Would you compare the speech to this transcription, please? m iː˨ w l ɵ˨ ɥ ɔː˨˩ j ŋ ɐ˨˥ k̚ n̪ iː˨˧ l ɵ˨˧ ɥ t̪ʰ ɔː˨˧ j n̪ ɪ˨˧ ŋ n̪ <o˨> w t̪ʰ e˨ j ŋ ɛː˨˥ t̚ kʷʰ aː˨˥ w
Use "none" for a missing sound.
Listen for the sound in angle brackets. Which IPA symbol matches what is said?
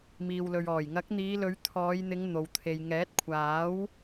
o˨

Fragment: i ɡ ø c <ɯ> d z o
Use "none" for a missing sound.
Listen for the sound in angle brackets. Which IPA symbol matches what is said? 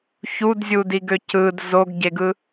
ɯ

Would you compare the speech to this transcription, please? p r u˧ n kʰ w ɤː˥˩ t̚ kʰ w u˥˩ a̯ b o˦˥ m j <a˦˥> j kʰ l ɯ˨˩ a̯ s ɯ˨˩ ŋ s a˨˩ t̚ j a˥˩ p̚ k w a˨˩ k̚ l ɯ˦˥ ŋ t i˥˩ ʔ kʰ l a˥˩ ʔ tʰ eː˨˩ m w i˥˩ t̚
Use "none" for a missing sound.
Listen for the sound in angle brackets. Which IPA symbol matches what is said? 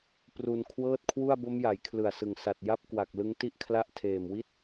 a˩˦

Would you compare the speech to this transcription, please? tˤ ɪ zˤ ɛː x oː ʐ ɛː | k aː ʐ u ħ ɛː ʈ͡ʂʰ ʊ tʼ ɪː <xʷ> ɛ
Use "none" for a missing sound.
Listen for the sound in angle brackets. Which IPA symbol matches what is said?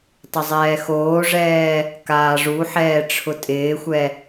xʷ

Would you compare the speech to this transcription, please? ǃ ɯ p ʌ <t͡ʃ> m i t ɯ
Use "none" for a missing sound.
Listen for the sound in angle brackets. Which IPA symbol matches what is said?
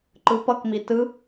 k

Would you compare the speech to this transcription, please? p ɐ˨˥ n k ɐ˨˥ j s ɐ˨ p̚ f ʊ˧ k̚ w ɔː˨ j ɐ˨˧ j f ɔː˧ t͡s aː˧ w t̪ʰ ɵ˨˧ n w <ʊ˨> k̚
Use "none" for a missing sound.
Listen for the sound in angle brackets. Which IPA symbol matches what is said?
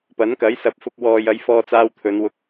ʊ˧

